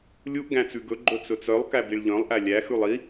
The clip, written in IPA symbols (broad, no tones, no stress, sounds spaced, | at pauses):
lʲ u ʔ ɡ æ̃ t͡s ʉ ɡ ɵ ɡ͡ǃ ɵ t͡s ɵ t͡s œ lˠ k æ b i ɭ ʎ œ̃ lˠ ʔ æ lʲ æ x ʉ lˠ i